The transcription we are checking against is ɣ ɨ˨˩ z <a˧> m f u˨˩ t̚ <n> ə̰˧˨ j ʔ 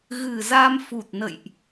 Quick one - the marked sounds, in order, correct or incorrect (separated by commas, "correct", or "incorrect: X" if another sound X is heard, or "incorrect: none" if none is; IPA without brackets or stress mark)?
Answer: correct, correct